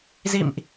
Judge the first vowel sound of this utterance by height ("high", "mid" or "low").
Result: high